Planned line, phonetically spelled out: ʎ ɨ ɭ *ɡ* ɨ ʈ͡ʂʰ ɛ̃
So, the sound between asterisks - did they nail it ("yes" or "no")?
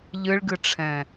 yes